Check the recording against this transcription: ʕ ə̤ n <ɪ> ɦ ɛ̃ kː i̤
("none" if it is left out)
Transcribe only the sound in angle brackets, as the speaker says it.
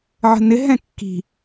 ɪ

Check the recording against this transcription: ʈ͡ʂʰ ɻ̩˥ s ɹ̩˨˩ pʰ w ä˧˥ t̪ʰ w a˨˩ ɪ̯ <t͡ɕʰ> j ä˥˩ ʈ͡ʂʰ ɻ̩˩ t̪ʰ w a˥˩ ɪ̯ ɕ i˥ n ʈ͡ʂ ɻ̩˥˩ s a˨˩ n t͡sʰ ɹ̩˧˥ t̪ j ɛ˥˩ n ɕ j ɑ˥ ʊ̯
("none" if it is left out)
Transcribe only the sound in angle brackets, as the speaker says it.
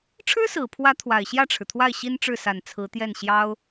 ɕ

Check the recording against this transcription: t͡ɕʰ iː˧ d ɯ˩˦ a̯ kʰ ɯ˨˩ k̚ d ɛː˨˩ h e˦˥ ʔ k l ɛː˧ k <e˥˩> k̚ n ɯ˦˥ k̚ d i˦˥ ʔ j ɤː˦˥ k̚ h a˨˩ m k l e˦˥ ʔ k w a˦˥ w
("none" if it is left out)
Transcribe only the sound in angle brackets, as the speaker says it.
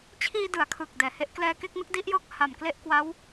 e˥˩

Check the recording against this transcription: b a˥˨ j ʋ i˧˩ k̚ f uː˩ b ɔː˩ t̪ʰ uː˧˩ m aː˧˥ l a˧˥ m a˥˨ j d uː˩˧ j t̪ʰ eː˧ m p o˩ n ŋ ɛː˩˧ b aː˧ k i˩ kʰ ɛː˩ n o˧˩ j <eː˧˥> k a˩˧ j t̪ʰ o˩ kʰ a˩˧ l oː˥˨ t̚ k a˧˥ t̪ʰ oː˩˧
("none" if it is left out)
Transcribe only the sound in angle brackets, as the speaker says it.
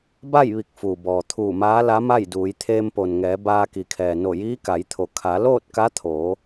iː˧˥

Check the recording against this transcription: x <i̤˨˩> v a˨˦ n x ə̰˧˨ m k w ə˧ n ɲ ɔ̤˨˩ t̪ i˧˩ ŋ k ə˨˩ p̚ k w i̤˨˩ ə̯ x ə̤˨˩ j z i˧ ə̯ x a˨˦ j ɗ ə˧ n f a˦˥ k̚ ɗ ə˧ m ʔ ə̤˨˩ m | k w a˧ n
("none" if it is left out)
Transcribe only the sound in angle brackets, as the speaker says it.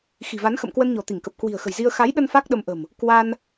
i̤˨˩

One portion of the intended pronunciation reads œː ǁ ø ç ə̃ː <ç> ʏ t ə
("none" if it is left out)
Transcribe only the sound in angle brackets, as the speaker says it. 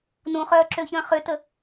χ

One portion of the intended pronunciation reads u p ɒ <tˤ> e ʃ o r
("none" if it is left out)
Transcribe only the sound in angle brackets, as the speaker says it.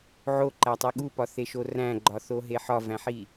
θ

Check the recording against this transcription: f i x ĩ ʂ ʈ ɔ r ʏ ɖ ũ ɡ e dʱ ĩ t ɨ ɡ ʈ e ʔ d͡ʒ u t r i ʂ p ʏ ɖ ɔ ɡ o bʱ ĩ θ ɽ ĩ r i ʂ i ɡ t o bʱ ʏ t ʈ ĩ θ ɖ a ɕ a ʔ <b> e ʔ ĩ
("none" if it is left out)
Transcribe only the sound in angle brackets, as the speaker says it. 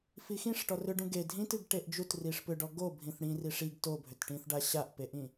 p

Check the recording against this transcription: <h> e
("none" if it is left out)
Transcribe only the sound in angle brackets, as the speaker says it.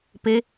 p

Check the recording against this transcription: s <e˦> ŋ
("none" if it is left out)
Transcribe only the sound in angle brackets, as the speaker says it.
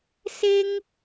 e˦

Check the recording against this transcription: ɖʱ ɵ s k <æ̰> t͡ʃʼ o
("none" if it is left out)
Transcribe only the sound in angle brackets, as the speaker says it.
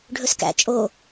æ̰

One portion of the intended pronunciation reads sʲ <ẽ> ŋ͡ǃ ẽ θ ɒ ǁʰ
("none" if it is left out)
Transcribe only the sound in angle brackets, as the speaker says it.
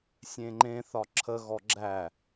ẽ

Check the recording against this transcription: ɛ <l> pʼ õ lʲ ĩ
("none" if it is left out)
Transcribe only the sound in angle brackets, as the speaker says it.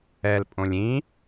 l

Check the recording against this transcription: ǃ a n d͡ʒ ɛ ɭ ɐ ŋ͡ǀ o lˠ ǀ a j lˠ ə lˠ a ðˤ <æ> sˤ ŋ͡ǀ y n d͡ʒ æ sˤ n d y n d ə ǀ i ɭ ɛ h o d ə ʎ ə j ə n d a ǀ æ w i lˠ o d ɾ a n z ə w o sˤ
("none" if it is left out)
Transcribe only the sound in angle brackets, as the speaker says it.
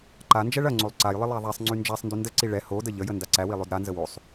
æ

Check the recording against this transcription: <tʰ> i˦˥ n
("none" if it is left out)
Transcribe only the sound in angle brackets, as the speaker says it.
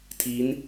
tʰ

